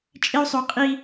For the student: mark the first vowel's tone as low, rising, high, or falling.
high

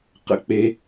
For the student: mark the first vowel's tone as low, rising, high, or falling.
low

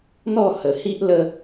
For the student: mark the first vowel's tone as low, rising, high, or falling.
falling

